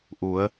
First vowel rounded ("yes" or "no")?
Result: yes